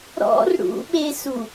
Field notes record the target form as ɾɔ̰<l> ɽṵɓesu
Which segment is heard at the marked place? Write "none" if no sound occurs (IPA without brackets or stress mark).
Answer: r